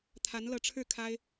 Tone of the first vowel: rising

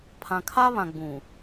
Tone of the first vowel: low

